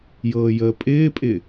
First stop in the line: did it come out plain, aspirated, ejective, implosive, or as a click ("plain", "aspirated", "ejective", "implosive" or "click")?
ejective